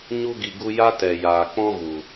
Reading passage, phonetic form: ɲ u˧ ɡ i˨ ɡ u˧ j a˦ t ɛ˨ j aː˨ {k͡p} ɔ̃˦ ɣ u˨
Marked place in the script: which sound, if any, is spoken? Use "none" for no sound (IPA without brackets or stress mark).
k͡p